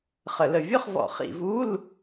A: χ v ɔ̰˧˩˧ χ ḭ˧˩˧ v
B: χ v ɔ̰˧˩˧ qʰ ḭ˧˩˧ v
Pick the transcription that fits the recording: A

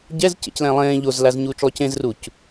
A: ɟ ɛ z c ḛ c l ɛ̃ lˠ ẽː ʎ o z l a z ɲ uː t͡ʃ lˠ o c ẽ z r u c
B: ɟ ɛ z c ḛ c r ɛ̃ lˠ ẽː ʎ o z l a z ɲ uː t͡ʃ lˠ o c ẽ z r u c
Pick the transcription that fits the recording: A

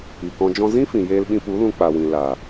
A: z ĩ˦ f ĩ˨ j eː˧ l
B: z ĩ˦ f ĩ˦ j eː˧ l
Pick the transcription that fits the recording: A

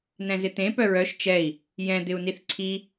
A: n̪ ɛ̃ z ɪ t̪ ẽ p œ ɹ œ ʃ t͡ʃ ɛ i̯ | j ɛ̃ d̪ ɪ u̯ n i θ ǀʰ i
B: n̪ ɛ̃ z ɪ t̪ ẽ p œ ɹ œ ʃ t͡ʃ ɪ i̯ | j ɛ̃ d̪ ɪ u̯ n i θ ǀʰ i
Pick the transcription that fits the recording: A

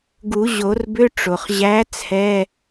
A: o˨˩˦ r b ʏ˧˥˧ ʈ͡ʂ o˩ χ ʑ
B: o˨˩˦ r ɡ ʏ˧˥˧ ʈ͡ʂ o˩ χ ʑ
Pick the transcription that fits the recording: A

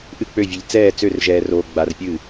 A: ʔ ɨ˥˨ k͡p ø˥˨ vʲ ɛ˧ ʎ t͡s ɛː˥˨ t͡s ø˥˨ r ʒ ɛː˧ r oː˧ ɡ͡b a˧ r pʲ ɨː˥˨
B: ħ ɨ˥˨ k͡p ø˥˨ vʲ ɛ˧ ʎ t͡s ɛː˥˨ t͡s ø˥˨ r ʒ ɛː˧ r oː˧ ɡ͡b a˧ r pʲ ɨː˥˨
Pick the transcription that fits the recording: A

